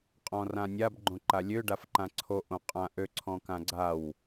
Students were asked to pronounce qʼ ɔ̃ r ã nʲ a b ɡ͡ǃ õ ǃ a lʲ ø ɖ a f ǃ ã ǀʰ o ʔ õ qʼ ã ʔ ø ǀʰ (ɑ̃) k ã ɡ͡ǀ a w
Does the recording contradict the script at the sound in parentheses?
yes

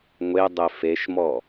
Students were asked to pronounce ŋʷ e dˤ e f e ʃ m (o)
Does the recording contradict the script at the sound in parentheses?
yes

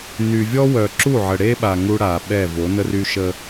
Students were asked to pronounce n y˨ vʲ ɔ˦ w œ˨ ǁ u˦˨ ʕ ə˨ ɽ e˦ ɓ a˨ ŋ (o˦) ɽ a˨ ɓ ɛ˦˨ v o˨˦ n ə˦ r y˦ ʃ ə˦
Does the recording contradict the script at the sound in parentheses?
yes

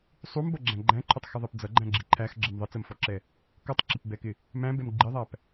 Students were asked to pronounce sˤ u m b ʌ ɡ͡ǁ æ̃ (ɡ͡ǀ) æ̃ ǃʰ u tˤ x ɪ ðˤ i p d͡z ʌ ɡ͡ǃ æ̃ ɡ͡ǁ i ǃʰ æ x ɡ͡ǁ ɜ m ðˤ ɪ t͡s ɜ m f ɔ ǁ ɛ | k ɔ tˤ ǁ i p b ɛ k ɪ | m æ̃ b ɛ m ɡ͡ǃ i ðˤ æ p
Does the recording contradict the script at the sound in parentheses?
yes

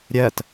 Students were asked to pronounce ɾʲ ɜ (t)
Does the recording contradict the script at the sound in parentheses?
no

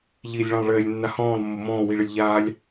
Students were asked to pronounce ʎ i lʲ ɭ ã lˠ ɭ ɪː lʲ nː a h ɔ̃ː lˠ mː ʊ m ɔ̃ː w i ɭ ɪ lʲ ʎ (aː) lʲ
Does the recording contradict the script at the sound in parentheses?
no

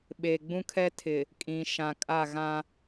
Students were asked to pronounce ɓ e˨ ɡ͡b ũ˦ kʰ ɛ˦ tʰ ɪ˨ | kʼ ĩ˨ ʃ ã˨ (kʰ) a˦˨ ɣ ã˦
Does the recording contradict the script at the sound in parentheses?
yes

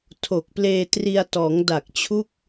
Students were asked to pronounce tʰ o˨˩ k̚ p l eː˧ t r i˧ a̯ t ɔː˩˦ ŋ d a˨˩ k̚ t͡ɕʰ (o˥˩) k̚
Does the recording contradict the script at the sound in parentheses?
yes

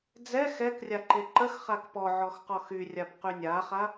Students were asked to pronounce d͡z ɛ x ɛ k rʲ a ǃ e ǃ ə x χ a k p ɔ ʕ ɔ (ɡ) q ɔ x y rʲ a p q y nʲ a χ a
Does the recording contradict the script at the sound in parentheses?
yes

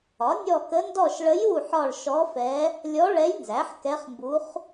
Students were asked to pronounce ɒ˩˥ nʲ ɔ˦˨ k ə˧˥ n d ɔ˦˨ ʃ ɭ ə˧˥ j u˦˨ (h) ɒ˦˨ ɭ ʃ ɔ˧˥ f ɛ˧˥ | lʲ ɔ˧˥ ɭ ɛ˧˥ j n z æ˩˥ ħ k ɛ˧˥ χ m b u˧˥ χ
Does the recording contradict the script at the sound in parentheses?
yes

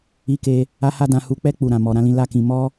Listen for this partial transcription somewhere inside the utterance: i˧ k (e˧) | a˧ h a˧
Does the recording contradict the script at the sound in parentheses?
no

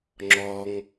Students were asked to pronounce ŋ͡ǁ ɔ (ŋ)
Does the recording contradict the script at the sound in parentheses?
no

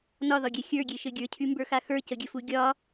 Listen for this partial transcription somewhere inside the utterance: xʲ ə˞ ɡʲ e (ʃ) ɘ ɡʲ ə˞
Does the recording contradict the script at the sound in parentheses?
no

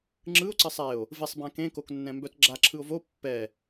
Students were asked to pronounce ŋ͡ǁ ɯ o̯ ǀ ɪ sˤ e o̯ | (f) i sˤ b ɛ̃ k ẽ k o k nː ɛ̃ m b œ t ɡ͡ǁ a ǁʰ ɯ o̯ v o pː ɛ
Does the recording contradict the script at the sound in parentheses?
yes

